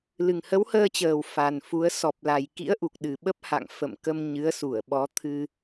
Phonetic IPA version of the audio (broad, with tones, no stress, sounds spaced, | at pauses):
l ɨ˨˩ ŋ h ə˨˦ w h əː˧ t͡ɕ əː˨˩ w f a˨˩ n f u˨˦ ə̯ s ɔ˨˩ p̚ l a˨˩ j k ḭ˧˥ ə̯ ʔ u˨˩ k̚ ɗ ɨ˨˩ ɓ ə˦˥ p̚ h a̰˧˨ ŋ f ə̰˧˨ m k ə˧ m ɲ ɨ˨˦ ə̯ s u˧˩ ə̯ ɓ ɔ˨˦ t̪ʰ ɨ˧